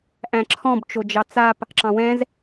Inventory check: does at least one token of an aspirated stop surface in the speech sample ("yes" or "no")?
yes